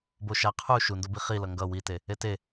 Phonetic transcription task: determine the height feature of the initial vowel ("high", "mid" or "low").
mid